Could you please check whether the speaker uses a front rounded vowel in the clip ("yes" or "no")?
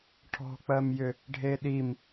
yes